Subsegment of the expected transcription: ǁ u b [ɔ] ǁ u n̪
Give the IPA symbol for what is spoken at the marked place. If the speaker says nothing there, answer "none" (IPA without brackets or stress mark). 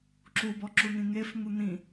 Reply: ɔ